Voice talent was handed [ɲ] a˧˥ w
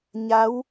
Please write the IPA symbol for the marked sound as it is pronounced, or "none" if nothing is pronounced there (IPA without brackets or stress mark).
ɲ